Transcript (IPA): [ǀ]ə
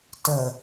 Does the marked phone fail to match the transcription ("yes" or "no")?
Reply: yes